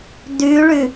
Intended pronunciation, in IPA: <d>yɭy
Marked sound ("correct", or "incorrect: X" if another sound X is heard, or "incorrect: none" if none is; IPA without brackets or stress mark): correct